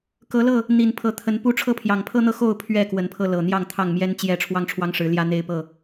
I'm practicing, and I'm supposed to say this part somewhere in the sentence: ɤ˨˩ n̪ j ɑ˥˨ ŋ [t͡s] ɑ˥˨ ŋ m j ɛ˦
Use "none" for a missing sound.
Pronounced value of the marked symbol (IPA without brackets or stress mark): t̪ʰ